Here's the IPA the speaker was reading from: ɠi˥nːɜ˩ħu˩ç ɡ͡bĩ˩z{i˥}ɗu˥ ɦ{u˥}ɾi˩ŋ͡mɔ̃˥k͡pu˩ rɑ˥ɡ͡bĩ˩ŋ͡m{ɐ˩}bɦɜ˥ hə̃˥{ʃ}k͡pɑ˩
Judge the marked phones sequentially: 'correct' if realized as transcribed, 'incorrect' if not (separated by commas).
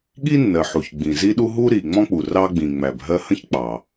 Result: correct, correct, incorrect, incorrect